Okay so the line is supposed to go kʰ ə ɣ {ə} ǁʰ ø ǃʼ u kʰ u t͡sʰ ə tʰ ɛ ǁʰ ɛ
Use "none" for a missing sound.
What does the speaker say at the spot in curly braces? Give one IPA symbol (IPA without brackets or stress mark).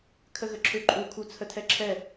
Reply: ə